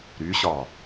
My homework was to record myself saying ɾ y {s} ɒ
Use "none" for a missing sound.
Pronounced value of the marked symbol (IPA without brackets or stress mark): ɕ